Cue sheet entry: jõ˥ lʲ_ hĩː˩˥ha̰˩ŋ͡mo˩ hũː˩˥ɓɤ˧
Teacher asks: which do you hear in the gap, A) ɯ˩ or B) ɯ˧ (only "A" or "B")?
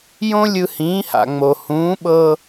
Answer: B